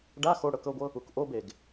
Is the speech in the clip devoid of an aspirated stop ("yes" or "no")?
yes